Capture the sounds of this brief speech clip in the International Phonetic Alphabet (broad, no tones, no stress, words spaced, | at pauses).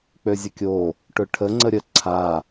k͡pøzʲəkʲo | ʈʊʈʰə ŋ͡ǀəɾʲə ǀʰa